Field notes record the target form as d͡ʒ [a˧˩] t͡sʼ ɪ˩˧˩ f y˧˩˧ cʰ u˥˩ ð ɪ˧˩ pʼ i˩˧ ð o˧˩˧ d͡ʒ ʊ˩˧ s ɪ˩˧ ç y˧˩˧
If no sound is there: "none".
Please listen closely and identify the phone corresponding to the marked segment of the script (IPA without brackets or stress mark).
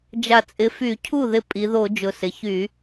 a˧˩